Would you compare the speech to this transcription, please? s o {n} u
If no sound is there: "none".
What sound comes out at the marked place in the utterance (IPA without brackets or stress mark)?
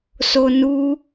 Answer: n